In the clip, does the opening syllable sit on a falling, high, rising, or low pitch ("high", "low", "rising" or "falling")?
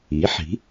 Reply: rising